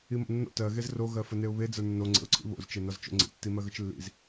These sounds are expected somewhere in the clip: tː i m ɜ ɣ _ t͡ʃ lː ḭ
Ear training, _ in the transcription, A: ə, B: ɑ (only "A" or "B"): A